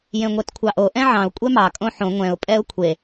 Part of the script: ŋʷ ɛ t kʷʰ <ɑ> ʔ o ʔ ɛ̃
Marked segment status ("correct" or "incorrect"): correct